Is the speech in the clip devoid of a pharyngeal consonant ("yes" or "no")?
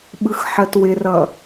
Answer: no